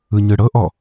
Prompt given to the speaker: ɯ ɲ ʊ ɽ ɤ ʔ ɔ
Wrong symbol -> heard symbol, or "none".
ʊ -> ɯ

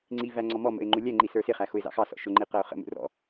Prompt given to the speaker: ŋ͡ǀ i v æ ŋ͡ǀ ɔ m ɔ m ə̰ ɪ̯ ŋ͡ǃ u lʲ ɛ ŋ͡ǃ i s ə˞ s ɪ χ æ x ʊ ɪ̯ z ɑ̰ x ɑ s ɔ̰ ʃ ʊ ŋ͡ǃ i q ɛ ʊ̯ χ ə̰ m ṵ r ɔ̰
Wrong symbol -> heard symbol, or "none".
none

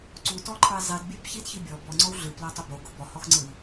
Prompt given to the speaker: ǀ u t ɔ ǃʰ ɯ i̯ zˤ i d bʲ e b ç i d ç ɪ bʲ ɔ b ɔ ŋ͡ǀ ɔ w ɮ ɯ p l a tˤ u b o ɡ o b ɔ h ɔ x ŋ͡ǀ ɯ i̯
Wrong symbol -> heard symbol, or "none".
ɪ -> i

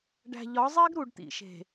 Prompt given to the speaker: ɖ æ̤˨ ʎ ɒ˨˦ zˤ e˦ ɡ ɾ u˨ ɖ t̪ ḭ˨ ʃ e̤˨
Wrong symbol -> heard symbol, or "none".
none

